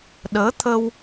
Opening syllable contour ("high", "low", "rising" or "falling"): rising